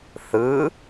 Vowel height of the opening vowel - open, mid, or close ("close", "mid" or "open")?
close